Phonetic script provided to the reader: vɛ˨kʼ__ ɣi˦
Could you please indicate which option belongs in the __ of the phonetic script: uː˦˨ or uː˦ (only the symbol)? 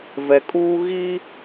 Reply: uː˦